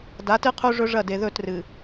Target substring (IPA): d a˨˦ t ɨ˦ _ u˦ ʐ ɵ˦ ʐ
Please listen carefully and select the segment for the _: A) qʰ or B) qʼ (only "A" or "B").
A